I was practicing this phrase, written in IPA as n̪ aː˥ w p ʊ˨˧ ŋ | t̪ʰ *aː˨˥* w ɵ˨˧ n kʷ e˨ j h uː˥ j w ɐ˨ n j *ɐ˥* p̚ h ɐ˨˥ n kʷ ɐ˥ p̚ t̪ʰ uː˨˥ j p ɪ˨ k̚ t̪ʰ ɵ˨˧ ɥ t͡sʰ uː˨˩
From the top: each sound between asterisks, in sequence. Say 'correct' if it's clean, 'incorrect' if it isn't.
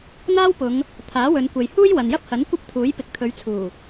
correct, correct

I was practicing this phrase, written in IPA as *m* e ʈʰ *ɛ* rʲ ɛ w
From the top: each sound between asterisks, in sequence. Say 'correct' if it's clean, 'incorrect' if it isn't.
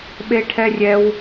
incorrect, correct

